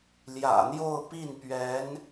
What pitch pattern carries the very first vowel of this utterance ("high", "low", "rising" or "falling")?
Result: low